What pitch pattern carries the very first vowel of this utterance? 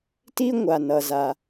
high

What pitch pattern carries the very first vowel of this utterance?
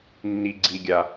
low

